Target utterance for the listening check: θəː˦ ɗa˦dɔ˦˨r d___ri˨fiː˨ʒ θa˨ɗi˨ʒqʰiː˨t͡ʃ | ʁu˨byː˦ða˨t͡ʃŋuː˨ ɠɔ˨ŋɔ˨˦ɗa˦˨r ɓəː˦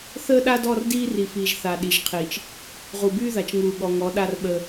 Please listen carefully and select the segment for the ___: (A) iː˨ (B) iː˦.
B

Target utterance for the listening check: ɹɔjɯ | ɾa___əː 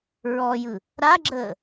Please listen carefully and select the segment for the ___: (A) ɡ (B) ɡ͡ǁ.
B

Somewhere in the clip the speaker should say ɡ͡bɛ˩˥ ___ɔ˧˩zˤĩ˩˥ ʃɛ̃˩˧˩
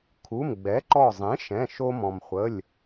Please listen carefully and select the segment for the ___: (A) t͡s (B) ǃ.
B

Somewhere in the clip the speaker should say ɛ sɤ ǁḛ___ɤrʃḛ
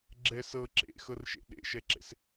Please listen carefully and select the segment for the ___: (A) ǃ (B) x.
B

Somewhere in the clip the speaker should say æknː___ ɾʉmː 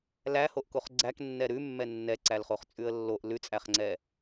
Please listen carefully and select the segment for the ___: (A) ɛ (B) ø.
A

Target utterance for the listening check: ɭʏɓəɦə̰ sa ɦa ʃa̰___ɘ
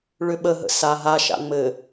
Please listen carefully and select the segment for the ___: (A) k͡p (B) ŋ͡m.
B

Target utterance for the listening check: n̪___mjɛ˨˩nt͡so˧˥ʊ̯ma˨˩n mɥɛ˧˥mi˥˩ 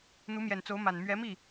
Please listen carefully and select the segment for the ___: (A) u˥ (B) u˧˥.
B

